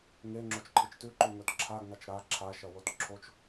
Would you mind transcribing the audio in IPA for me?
ŋe ŋ͡ǁot͡ʃǃʰɨt͡ʃtʉǃu ŋɵtǁʰaɡŋat͡ʃ ɾa ǁʰaʃɐ wotǁʰot͡ʃ

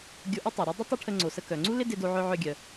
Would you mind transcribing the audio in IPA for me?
ɡʲo˧ʔu˥ tˤo˩ɾœ˥ dˤə˥ tˤə˥ ʈʰə˧ŋ͡ǀo˩sə˧ kœ˩ŋ͡ǀu˥ lɪ˥dɪ˧do˧ʕœ˧ ʕœ˧ɡʲœ˩

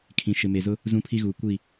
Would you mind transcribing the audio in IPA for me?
kʰĩ˨ʃɪ˨me˨zʊ˦ | zũ˦pʰi˦ɣuː˨ kʷi˦˨

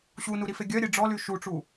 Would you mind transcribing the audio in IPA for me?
ɕunuɾife ɡʲœɾʲe ɖ͡ʐɔly ʃuʈ͡ʂu

